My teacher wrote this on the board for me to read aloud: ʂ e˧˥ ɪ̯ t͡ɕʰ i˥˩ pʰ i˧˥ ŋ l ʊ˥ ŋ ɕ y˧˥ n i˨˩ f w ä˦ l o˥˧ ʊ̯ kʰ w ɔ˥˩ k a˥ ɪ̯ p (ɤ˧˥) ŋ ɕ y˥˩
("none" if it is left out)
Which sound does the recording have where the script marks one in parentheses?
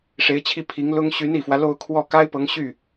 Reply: ɤ˧˥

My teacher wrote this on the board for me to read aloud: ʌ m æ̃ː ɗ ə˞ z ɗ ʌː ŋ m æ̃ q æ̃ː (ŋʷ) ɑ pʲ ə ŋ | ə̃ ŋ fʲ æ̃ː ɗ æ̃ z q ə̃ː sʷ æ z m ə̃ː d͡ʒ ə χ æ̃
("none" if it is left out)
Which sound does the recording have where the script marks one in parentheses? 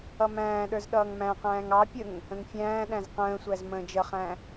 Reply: ŋ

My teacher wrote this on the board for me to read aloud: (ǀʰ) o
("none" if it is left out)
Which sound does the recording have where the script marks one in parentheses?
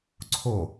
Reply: ǀʰ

